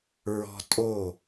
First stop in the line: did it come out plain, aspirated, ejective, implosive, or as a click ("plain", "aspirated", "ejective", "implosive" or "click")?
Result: ejective